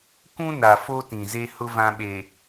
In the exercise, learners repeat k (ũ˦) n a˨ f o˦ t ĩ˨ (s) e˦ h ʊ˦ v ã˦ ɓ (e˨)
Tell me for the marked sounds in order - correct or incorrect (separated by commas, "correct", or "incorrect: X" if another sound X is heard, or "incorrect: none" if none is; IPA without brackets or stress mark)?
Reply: correct, incorrect: z, correct